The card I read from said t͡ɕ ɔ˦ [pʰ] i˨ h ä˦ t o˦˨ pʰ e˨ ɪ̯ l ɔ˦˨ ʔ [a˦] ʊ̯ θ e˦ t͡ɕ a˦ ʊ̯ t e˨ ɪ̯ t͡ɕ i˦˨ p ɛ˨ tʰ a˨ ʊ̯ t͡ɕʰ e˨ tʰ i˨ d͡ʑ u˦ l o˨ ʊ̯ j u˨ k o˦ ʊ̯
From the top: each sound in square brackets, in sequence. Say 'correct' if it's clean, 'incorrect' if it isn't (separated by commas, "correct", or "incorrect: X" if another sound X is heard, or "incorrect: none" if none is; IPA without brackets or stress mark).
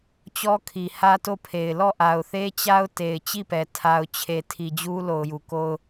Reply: incorrect: kʰ, incorrect: a˨